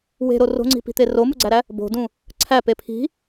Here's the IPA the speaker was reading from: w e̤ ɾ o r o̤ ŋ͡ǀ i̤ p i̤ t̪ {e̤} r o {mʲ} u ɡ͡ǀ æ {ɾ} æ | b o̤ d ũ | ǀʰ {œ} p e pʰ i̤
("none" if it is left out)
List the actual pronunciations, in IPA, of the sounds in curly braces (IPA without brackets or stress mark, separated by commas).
e, m, ɾ, æ